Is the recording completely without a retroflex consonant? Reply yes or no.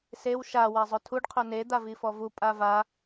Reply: no